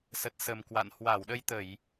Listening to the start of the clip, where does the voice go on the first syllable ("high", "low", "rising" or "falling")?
low